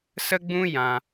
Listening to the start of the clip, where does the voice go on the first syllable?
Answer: high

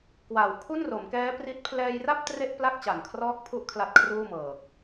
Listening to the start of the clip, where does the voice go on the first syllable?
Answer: low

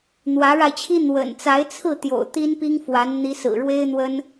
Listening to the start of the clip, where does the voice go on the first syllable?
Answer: rising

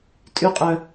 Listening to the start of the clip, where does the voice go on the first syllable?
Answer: high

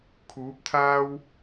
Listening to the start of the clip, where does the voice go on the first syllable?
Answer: rising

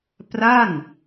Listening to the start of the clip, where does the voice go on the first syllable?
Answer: falling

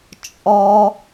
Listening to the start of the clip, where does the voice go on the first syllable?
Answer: high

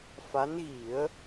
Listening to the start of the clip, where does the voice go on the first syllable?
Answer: rising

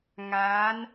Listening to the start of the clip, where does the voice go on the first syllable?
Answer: rising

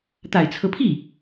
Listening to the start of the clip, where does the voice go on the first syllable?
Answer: low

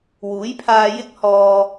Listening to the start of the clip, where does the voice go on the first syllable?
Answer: rising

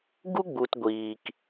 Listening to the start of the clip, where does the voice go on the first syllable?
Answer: high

